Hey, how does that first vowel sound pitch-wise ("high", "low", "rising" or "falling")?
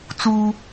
high